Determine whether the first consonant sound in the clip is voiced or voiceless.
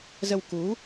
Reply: voiced